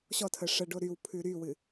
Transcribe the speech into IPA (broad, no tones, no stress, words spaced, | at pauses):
ɕɔtʰə ʂəɖo ɾyw pʰʉɾywɨ